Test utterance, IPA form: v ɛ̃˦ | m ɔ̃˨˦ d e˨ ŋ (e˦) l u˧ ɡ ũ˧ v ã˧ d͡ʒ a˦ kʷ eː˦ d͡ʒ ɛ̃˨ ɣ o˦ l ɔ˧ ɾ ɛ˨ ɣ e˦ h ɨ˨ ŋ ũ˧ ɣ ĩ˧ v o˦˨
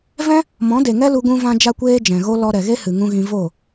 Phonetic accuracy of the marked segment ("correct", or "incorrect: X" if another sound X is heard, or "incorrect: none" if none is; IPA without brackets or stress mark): incorrect: ɛ˦